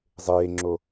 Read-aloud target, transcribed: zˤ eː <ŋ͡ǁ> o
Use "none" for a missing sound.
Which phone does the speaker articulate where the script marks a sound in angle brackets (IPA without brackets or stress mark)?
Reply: ŋ͡ǁ